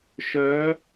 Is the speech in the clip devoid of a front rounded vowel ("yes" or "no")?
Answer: no